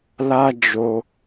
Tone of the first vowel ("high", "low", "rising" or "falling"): high